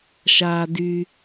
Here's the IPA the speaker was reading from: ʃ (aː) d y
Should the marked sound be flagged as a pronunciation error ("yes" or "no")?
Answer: no